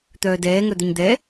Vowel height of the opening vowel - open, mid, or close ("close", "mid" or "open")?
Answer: mid